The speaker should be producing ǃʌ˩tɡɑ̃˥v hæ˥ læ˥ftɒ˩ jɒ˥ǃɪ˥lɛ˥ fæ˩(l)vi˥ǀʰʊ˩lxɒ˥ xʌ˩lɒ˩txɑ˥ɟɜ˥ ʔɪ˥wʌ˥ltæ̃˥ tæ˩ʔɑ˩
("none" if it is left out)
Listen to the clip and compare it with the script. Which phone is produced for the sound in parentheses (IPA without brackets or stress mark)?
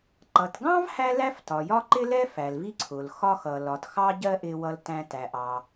l